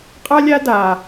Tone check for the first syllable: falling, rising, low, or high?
high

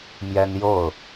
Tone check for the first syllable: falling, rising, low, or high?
high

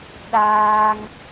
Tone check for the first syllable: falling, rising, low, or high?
high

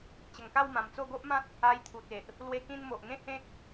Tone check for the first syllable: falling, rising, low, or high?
low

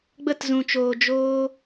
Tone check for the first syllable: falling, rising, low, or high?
falling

